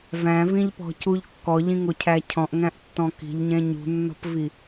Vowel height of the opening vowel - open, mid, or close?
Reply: open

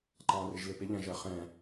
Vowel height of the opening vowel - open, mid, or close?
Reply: open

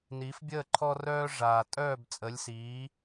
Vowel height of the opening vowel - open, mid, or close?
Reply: close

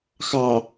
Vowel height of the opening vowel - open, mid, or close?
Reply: open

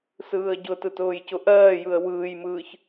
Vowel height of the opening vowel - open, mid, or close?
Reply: close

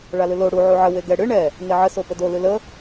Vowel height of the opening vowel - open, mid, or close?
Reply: open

